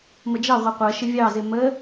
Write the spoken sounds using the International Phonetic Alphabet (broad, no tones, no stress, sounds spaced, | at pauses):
m ə d͡ʒ ɑ ʁʷ ɜ qʷ ɜ ʃ ɪ vʲ ɑ z ɪ m ə